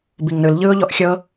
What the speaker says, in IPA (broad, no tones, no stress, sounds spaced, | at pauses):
b i ŋ n ɯ l ʎ ɯː ʊ̯ ʎ ɔ ʔ xʲ ɤ